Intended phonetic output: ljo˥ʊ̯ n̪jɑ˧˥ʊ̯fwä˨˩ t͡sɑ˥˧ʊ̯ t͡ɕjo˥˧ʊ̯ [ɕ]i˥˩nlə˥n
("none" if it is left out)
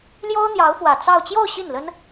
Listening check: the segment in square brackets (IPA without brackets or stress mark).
ɕ